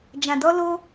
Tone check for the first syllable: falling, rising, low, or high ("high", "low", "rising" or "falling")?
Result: low